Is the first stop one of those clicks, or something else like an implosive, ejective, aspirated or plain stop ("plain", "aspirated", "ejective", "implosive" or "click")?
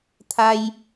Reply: aspirated